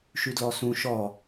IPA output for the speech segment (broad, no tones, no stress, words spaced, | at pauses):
ʃʉdlɔsũ ʃɔ